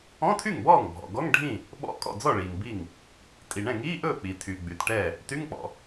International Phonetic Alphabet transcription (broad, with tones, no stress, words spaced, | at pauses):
ɔ̃˧˥˧tʰy˥˩ŋbɔː˥˩ŋbʱɔ̰˩ ɡɔ˧˥˧ŋɖʱĩ˥˩ | ɓɔ̰˧˥˧kʼɔ̰˥˩d͡zɔ˥˩ɭiː˩ŋ bi˥˩ŋ | tʼi˩ɳɛ̃˥˩ŋiː˧˥˧ʔɵː˥˩ k͡pi˩tʰy˩ɡ͡by˩t ʈɛ˥˩ | ty˧˥˧ŋk͡pɔ̰˩